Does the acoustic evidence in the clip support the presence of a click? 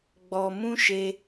no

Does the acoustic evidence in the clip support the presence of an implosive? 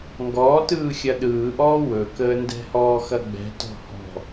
yes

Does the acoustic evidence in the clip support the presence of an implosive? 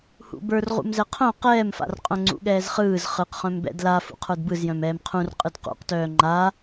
yes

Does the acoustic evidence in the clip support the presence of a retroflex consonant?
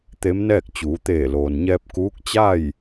no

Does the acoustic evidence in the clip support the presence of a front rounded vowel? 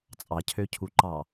yes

